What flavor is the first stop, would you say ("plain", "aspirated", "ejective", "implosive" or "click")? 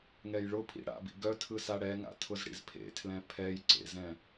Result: aspirated